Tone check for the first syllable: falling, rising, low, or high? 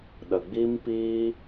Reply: low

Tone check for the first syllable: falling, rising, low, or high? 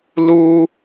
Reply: high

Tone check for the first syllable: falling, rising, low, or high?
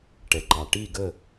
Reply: low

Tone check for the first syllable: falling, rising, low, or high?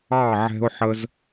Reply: falling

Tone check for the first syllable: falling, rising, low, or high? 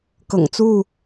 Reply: low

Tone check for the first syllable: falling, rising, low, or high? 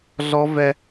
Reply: high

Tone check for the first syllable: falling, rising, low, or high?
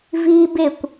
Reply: high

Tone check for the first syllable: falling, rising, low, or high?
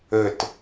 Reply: falling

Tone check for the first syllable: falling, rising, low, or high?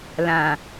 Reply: low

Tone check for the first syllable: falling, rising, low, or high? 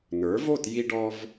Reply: rising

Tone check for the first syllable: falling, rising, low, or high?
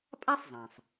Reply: high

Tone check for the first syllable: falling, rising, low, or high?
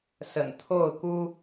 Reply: low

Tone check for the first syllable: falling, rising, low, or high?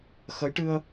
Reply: rising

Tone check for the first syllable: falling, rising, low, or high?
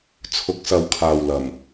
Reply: rising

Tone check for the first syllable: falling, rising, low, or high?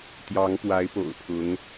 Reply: rising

